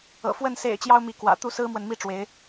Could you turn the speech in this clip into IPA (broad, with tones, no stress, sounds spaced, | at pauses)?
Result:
ɤ̰˨˩ f w ə˥˨ n s ḛ˨˩ ɪ̯ t͡ɕ j ɑ˦ ʊ̯ m i˨˦ k w ä̰˨˩ t̪ u˥˨ s ɹ̩˦ m w ə˨ n m i˥˨ ʈ͡ʂ w e˨˦ ɪ̯